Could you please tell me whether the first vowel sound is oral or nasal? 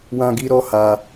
nasal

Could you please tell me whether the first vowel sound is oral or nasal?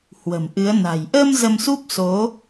oral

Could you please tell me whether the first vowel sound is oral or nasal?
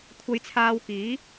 oral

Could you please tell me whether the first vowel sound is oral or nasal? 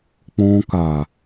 nasal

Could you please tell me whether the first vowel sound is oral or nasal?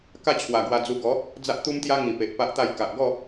oral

